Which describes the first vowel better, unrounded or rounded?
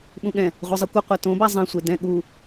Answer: rounded